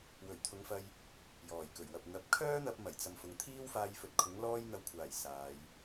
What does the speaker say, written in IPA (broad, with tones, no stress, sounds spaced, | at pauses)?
w ɵ˨˩ ɥ t̪ʰ ʊ˨˧ ŋ f ɐ˧ j | j ɔː˨˩ j k ɵ˨˩ ɥ w ɐ˨ p̚ n̪ ɐ˨˥ p̚ kʰ œː˥ n̪ ɐ˧ p̚ m ɐ˨˩ j t͡s ɐ˨ m f ʊ˨ ŋ t̪ʰ iː˥ w f aː˧ j f ɵ˨ t̚ kʰ ʊ˨˥ ŋ l ɔː˥ j n̪ ɐ˧ w kʷʰ aː˨˩ j s aː˨˧ j